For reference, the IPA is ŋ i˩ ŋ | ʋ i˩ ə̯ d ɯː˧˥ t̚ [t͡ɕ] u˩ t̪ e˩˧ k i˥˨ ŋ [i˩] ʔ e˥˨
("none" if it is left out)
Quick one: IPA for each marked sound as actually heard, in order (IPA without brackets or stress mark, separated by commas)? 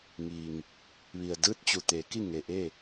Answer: t͡ɕ, e˩